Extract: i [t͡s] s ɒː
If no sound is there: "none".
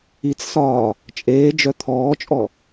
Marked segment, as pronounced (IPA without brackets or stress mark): t͡s